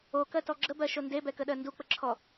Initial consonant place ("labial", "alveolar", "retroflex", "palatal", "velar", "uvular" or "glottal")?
velar